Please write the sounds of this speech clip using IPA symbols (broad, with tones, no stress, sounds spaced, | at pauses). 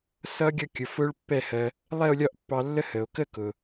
s ʌ˦˥ ɡʲ ʌ˥˧ kʲ ʊ˩˧˩ f ʊ˦˥ ɭ pː ɛ˥˧ h ɜ˧ | lˠ ɛ˥˧ o̯ lʲ ɒ˥˧ ʔ pː ɑ˧ lː ə˦˥ h ə˩ o̯ k ə˥˧ k ʊ˩